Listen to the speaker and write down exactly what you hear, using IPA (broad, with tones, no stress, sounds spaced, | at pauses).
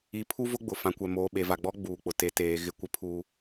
i˨ pʰ u˦ v ʊ˦ ɡ͡b ʊ˨ f ã˨ kʷ ɛ˨ m oː˨ ɓ e˨ v a˨ ɡ͡b ɔ˦ ɡ͡b uː˨ k͡p ʊ˨ t e˨ t eː˨ ɣ ɪ˦ kʷ ɪ˦ pʰ uː˦